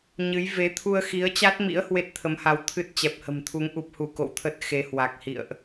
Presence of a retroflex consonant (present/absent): absent